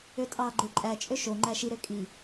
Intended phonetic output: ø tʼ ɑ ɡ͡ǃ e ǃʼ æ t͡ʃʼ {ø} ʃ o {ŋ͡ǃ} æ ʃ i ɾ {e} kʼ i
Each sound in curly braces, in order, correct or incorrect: correct, correct, incorrect

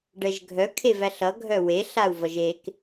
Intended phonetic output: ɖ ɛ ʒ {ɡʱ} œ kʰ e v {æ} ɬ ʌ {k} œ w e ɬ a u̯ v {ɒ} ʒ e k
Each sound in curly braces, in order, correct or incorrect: correct, correct, incorrect, incorrect

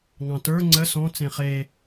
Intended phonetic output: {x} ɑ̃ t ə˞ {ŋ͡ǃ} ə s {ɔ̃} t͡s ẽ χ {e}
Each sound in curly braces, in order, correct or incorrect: incorrect, incorrect, correct, correct

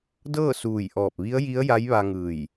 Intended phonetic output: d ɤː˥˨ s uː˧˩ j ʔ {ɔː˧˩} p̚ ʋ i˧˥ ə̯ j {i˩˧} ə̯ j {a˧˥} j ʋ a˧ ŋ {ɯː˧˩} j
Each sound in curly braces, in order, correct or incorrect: correct, incorrect, correct, correct

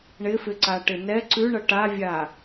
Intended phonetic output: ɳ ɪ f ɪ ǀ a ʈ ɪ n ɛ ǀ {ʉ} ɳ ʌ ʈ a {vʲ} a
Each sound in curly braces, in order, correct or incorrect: correct, correct

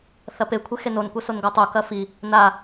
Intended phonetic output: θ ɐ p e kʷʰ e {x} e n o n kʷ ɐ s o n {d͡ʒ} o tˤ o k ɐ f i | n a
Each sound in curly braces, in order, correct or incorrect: correct, incorrect

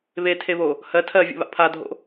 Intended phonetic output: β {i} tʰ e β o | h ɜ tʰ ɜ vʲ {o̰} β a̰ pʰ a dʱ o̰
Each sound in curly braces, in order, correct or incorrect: incorrect, correct

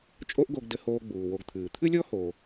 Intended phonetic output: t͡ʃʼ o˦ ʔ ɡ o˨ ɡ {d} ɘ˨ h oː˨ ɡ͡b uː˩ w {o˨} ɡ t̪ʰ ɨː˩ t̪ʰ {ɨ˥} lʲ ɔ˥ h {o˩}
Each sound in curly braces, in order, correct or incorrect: correct, correct, correct, incorrect

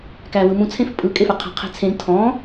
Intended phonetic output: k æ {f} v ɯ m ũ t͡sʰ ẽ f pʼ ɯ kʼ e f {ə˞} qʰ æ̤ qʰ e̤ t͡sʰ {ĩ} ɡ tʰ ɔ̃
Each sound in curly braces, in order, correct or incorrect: incorrect, correct, incorrect

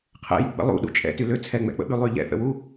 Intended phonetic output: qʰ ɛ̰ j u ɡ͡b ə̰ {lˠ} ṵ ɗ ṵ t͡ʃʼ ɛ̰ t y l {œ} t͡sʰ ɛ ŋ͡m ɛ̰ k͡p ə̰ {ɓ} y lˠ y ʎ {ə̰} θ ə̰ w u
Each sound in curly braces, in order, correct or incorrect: correct, incorrect, correct, incorrect

